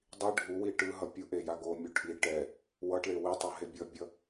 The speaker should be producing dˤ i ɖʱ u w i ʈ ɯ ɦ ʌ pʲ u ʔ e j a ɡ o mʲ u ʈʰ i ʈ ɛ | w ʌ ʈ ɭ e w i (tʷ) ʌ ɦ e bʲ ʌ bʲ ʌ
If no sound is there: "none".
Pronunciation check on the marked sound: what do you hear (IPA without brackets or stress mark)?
tˤ